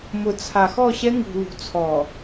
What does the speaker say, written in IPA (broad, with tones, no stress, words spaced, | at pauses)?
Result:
mʊ˨ t͡sʰa˨xɔ˦˨ɕɛ˦ ŋṳ˨ lṳ˨t͡sʰɔ˨